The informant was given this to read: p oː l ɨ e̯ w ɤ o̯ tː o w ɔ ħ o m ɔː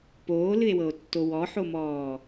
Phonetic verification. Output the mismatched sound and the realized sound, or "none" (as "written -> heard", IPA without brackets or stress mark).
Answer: none